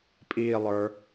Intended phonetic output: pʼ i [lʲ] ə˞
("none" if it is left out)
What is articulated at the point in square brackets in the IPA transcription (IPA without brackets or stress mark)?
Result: lˠ